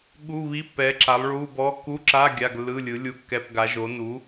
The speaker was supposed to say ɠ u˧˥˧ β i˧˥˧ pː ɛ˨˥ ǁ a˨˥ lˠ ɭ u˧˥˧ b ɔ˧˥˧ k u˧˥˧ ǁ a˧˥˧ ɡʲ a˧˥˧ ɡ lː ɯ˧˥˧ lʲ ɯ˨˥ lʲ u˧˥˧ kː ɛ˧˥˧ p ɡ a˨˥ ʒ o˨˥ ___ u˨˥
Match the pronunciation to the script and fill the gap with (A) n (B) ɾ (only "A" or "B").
A